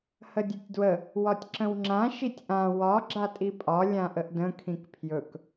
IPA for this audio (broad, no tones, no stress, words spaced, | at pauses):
hədʲɵtʲdwə | wɒtʲǁə̃wŋ͡ǁã ʃitʲʔã wɒ ɡ͡ǁatʼipʼɒ lʲãʔəʔdə̃ kʰĩkpʰjɵk